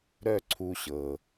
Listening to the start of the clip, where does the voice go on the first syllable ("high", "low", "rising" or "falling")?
falling